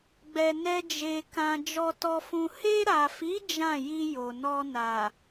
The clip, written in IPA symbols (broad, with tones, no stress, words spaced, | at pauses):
ɡ͡bɛ˧nɛ˦d͡ʒe˧ kã˧ d͡ʒɔ˧tɔ˧fũ˧ he˧ɾa˨fi˨˦ d͡ʒã˦˨ji˧ jo˨nɔ˧ na˨